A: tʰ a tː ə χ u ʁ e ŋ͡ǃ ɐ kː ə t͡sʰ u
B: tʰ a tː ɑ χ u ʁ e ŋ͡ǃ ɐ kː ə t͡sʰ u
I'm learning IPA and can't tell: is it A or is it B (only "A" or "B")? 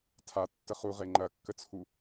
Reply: A